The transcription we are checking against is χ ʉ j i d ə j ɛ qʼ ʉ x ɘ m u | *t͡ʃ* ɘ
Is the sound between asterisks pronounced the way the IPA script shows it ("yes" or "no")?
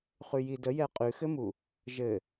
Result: no